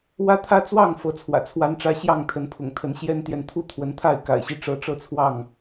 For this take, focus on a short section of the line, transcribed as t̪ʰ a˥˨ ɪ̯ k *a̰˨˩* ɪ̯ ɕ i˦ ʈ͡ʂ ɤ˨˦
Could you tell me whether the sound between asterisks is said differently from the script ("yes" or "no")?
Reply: no